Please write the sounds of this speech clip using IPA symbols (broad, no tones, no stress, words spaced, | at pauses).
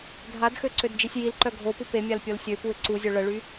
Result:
dʱadxø ǀødd͡ʒisʲjilǃœ ɡʱopu pemʲal pʲolsʲøpuɪ̯ ǀuzʲo ɭəɭy